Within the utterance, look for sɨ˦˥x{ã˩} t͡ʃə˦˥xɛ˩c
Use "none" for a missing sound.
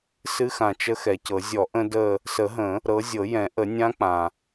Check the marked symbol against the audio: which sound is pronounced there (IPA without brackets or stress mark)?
ã˩